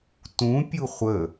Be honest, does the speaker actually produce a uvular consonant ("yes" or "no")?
yes